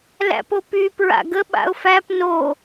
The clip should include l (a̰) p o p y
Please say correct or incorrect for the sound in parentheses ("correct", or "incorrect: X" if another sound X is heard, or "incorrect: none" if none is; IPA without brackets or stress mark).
incorrect: æ̰